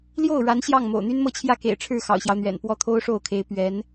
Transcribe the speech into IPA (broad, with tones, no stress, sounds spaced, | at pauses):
l j o˥˩ ʊ̯ ɻ a˧˥ n ɕ j ɑ˥˩ ŋ m o̰˨˩ ʊ̯ n̪ y˥ n m ɤ˥˧ t͡ɕʰ j ä˥˩ k ḛ˨˩ ɪ̯ ʈ͡ʂʰ ɻ̩˥˩ x ɑ̰˨˩ ʊ̯ ɕ j ɑ˦ ʊ̯ n̪ ɥ ɛ̰˨˩ n p w ɔ˥˩ t̪ʰ o˥ ʊ̯ ʂ o˥˩ ʊ̯ kʰ e˧˥ ɪ̯ p ɥ ɛ˧˥ n